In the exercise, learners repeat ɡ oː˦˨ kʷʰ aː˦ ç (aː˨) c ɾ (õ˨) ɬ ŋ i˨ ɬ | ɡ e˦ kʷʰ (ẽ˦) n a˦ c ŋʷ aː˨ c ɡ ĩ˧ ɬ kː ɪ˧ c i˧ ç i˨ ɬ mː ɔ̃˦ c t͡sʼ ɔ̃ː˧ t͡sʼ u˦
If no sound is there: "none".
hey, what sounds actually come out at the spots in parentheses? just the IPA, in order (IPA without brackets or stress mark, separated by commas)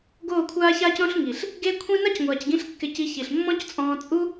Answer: aː˦, õ˧, ĩ˦